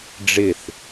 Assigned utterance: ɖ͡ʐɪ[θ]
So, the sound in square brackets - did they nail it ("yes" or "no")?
yes